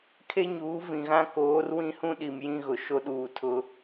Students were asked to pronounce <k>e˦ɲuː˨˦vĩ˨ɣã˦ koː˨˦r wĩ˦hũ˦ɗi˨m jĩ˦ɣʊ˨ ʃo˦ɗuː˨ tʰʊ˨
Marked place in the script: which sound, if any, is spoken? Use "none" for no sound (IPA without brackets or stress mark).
kʰ